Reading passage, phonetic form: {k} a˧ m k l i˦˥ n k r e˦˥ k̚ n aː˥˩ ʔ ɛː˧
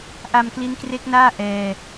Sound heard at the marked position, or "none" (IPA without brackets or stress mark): ʔ